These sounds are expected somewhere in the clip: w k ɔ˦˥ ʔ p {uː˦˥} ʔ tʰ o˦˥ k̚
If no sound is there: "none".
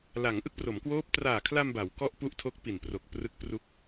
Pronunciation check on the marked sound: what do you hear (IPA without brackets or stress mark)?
u˦˥